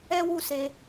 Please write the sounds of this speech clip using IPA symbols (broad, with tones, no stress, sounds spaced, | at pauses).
ɛ˦ w u˦˨ s e˧